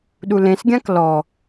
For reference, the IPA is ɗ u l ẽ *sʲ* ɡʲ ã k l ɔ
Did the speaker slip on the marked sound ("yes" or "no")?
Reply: yes